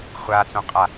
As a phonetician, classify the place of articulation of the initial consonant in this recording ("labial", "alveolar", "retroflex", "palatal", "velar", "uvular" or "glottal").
uvular